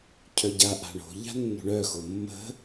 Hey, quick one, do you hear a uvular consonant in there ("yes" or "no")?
no